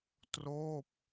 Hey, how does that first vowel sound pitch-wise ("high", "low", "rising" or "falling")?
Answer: falling